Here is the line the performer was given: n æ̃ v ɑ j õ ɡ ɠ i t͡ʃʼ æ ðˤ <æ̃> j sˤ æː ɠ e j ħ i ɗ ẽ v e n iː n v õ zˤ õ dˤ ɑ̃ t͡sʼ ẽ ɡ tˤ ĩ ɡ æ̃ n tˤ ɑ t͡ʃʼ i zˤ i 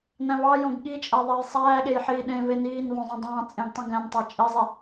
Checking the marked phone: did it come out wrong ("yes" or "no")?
yes